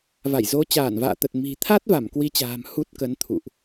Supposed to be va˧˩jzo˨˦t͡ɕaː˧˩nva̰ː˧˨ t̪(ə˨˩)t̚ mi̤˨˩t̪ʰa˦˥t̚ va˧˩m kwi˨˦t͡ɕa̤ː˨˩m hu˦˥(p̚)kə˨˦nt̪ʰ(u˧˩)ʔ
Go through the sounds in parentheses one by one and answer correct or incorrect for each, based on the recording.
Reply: correct, incorrect, incorrect

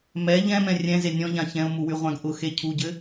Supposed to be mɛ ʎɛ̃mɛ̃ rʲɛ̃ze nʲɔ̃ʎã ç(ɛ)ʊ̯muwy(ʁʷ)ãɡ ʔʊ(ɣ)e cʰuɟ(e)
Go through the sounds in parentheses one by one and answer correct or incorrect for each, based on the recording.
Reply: incorrect, correct, incorrect, incorrect

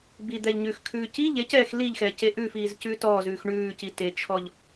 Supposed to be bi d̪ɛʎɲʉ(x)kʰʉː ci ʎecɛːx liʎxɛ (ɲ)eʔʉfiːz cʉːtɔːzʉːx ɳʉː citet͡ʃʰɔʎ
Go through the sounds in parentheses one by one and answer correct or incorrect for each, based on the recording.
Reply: correct, incorrect

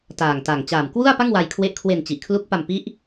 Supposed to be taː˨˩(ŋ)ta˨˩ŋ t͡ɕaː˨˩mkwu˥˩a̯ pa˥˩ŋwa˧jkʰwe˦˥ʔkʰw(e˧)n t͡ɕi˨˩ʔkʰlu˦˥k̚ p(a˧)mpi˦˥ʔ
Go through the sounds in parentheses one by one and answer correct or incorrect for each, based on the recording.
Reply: correct, correct, correct

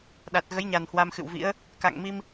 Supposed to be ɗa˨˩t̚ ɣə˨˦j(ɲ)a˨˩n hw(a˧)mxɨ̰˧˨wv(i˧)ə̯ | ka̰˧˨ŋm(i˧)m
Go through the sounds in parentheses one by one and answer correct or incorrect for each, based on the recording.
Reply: correct, correct, incorrect, correct

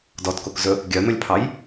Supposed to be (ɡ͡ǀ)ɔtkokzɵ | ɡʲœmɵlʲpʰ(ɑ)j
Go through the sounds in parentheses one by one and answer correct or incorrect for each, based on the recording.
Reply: incorrect, correct

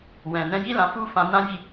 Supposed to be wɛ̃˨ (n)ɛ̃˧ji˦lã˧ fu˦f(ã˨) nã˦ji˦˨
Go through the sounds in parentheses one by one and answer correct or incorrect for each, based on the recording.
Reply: correct, incorrect

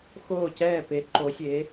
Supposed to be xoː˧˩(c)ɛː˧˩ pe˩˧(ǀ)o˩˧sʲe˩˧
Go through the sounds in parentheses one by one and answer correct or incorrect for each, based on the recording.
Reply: correct, incorrect

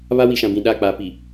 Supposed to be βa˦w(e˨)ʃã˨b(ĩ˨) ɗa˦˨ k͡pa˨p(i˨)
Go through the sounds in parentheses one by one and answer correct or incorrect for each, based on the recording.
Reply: incorrect, correct, correct

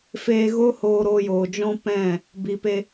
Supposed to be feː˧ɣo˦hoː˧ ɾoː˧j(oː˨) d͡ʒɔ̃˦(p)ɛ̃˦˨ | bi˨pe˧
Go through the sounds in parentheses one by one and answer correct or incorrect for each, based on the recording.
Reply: correct, correct

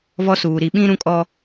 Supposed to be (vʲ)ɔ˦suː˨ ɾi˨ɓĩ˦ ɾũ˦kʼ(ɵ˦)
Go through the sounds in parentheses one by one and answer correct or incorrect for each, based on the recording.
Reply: incorrect, incorrect

